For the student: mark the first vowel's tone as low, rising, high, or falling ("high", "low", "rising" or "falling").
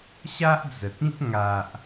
high